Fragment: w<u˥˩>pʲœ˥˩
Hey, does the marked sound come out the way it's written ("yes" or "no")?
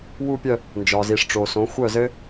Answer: yes